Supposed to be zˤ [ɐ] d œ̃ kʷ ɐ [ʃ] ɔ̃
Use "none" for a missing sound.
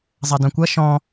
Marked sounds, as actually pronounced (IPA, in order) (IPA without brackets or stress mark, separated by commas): ɐ, ʃ